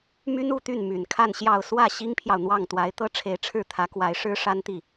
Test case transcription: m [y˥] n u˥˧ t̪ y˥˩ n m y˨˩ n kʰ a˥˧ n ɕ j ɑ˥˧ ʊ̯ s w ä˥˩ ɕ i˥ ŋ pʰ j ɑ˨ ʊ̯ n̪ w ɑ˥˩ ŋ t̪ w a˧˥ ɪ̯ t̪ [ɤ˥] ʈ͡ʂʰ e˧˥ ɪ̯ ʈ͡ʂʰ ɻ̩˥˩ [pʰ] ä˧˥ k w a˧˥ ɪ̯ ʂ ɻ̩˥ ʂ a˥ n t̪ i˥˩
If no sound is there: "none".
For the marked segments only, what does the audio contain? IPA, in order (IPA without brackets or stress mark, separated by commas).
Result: y˥, ɤ˥, t̪ʰ